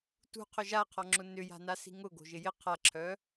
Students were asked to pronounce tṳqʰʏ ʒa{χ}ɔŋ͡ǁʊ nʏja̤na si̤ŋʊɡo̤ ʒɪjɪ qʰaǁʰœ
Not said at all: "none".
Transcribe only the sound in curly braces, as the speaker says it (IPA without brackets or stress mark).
qʰ